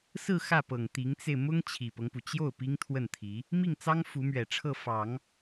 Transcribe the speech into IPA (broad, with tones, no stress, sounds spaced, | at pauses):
s ɹ̩˥˧ x ä˥˩ p ɤ˨˩ ŋ t̪ i˧˥ ŋ t͡s e˧ ɪ̯ m ʊ˥ ŋ t͡ɕʰ i˨˩ p ɤ˦ ŋ p u˩ t͡ɕ j o˥˩ ʊ̯ p i˥ ŋ t̪ʰ w ə˥˩ n t̪ʰ i˧˥ | m i˥˩ ŋ t͡s ɑ˥ ŋ f u˧˥ m ɥ ɛ˨˩ ʈ͡ʂʰ ɤ˥˩ f ɑ˨˩˦ ŋ